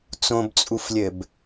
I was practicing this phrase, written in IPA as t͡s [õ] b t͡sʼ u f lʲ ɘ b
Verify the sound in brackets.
correct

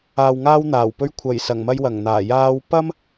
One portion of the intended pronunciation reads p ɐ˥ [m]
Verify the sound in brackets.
correct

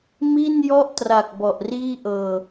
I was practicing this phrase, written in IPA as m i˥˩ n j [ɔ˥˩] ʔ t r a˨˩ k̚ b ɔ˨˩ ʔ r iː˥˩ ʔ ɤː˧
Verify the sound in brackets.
correct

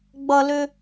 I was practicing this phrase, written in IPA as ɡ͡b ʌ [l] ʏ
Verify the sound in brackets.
correct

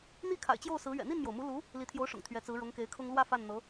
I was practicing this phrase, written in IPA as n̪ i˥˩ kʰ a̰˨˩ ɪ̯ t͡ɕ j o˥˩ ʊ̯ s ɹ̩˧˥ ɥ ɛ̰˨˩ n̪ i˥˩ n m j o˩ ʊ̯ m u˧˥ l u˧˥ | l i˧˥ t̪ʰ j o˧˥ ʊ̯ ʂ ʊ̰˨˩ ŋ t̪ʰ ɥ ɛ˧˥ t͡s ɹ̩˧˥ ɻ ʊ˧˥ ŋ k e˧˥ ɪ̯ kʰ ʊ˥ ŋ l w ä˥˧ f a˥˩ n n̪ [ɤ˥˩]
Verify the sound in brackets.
incorrect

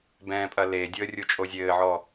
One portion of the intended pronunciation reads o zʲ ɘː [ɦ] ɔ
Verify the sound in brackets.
incorrect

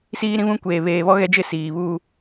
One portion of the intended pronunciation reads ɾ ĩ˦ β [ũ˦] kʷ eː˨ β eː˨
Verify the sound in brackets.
correct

